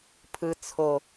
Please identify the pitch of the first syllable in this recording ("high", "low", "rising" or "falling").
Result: low